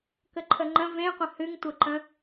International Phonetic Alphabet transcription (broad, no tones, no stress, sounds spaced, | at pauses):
k ə ǃʰ ə ŋ͡ǃ ə̃ v ẽ qʷ ə̃ h ɨ ŋ tʷ ə ǃ ə̃